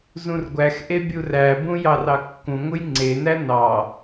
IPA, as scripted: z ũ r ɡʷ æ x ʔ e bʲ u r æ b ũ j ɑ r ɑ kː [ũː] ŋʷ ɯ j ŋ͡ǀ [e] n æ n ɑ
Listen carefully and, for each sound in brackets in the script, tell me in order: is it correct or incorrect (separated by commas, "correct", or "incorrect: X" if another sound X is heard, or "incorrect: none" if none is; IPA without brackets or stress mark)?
incorrect: ũ, correct